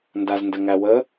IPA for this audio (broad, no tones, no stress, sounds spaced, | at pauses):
n d a z n d ə ŋ æ w ə